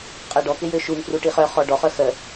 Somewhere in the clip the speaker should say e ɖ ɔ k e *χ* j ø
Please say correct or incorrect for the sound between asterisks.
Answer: incorrect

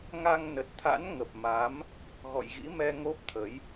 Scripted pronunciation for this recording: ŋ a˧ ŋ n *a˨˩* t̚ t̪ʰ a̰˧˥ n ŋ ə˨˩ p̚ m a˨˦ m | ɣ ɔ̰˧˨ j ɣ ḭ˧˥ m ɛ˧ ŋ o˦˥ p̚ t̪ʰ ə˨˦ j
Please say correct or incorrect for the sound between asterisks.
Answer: incorrect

